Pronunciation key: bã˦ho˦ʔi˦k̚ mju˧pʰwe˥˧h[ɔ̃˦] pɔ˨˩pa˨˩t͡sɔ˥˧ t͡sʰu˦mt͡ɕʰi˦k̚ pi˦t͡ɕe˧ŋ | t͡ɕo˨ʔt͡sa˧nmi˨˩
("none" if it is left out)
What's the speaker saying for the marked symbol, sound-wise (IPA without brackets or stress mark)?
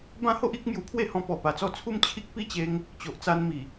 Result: ɔ̃˧